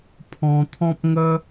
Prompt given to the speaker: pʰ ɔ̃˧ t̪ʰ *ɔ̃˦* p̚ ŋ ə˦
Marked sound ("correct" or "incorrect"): correct